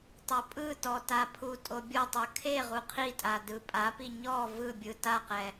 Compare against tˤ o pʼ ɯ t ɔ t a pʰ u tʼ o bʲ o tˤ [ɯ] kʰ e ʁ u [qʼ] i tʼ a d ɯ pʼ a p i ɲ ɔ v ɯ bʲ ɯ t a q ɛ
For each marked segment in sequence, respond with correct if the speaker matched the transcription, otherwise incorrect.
correct, incorrect: qʰ

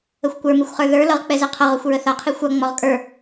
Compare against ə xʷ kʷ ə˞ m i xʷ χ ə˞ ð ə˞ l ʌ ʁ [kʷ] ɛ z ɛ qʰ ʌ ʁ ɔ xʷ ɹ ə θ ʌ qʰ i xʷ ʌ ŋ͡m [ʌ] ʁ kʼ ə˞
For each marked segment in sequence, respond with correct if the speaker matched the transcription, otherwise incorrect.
incorrect: k͡p, incorrect: ɔ

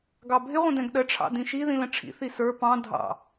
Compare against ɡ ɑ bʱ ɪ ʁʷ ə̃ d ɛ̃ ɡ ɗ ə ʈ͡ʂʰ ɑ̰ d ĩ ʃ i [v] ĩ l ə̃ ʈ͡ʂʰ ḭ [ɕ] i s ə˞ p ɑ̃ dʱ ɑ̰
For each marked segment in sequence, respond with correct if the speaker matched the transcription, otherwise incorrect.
incorrect: ð, incorrect: θ

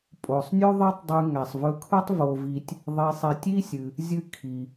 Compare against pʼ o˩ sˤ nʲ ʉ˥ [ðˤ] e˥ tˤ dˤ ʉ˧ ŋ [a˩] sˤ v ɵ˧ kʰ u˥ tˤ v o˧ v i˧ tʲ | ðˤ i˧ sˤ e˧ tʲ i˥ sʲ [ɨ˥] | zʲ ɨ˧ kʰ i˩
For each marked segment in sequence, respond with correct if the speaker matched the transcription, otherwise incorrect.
correct, correct, incorrect: ɨ˩

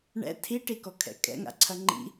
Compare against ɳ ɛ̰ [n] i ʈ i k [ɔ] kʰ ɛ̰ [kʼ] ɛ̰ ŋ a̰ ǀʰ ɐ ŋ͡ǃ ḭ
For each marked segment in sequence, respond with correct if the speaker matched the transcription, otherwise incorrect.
incorrect: tʰ, correct, correct

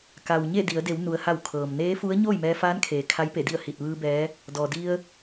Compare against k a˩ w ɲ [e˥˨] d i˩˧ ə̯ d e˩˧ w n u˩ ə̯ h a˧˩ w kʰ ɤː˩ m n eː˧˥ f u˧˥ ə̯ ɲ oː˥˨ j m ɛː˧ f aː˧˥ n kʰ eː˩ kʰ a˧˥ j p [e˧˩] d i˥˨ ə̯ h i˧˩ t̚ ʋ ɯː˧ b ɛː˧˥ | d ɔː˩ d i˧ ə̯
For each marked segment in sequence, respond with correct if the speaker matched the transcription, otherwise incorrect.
correct, correct

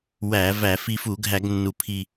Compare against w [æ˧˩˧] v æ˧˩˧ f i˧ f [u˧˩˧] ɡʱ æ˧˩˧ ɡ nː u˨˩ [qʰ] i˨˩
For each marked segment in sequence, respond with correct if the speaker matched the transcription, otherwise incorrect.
correct, correct, incorrect: pʰ

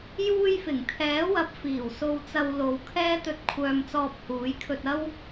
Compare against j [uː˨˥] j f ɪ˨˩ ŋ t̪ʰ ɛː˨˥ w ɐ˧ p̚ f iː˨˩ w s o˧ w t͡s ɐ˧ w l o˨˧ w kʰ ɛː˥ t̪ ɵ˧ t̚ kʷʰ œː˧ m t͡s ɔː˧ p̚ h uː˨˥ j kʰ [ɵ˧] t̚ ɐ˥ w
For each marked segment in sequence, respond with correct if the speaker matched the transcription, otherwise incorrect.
incorrect: uː˧, correct

